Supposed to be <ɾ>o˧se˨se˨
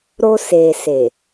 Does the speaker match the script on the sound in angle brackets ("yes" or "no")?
yes